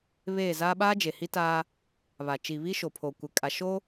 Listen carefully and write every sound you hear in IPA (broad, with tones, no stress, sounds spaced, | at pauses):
β eː˦˨ z aː˦ ɓ aː˦ d͡ʒ e˨ h i˦ t aː˦ | β a˨ t͡ʃ i˨ β i˦ ʃ o˨ pʰ o˨ kʷ ɪ˨ kʼ a˨ ʃ o˦